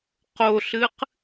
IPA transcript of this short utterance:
q o ɬ ɨ q

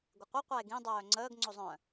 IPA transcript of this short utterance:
ɡʷ ɪ qʷ e qʷ a e̯ ɡ ĩ dˤ œː ŋ͡ǀ əː ɡ ŋ͡ǀ o zˤ œ̃

